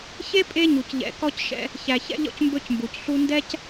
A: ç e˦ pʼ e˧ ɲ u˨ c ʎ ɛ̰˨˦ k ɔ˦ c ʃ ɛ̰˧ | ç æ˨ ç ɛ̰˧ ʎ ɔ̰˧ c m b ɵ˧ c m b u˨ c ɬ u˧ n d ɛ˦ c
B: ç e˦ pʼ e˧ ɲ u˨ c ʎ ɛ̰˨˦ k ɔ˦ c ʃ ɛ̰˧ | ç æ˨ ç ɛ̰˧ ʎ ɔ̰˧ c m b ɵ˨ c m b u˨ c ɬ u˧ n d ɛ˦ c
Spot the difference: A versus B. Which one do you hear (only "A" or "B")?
A